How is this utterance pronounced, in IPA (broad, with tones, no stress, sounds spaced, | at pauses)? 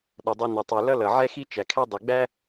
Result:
ɗ ʌ˩ dˤ u˨ n ɪ˩ tˤ u˩ l ʌ˦ l ʌ˩ ʕ ɛ˦ x i˦ t͡ʃ æ˩ kʰ æ˦ dˤ i˩ ɡ͡b æ˥